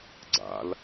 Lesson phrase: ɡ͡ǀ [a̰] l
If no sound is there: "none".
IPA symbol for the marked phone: a̰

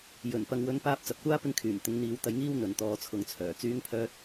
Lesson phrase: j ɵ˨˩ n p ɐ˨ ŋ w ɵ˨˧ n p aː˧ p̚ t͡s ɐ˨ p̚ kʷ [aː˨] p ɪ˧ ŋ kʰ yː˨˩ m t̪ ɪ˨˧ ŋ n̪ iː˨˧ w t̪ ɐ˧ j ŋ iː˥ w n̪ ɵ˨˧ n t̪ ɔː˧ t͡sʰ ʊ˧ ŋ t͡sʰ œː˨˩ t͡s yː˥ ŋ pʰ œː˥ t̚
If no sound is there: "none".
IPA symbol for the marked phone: aː˥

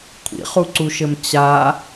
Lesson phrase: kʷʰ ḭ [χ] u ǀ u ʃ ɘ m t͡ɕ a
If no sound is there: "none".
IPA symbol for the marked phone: χ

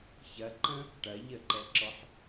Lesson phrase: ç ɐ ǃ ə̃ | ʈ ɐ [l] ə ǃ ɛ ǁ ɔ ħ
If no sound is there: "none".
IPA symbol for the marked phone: ʎ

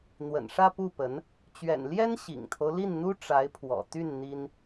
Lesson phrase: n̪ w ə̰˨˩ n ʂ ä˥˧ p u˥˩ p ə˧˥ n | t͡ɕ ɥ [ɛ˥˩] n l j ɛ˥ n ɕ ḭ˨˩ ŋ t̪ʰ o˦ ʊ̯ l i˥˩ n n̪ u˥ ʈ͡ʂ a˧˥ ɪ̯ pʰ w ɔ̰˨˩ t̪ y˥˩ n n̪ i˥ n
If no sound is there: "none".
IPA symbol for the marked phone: ɛ̰˨˩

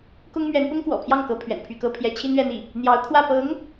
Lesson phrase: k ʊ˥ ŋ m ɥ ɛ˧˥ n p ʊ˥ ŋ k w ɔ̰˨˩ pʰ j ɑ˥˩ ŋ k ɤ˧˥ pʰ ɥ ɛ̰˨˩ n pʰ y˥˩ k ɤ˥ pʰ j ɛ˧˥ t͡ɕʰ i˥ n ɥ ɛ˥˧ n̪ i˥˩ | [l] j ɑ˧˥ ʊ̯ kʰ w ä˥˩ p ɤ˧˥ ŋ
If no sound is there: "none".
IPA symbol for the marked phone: n̪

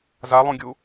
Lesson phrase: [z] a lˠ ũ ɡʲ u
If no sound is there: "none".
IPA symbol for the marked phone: z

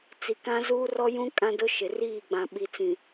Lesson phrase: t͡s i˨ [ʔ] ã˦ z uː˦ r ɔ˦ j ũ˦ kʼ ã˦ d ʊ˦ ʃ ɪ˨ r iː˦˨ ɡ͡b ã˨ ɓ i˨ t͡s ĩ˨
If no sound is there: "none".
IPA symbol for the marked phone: k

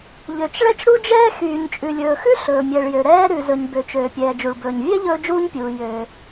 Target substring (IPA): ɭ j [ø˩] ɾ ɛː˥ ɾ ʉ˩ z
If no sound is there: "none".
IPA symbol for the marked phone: ø˩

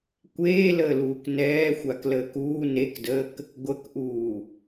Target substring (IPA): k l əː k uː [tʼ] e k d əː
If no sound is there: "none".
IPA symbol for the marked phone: n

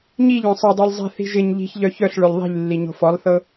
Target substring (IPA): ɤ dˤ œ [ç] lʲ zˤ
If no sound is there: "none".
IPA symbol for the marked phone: none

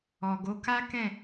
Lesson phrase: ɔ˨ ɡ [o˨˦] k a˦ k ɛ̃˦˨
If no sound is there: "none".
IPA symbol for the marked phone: o˨˦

